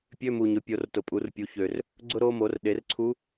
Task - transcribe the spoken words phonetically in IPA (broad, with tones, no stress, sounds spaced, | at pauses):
pʲ ø˧˥˧ m u˨ ɲ ʊ˩˥ pʲ o˩˥ r t ʊ˨ pʼ u˩˥ r pʲ u˩˥ ç ø˨ r | ɡ͡ǀ ʊ˥ ɾ o˥ m o˩˥ r ɗ e˩˥ r ǀʰ u˧˥